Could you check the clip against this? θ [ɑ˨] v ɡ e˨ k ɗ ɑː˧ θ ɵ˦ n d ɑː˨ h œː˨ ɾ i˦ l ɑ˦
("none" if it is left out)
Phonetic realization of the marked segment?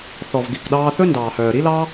ɔ˨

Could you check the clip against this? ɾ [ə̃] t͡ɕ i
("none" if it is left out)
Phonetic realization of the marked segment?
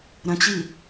ə̃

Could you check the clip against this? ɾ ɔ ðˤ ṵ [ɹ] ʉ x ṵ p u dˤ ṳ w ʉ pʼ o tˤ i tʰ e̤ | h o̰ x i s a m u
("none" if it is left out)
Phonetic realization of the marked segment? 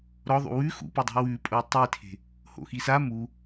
w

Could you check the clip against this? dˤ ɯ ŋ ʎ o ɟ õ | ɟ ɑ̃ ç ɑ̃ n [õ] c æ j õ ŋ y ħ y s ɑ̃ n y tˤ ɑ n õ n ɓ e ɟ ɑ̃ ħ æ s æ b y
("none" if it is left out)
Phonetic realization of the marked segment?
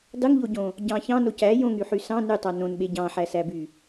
o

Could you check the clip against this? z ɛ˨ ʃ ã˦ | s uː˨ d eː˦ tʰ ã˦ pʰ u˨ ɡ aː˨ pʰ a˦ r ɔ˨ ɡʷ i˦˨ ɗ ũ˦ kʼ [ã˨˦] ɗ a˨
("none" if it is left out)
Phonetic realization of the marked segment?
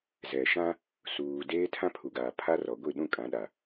ã˨˦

